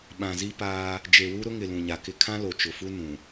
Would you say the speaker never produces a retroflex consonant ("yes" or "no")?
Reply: yes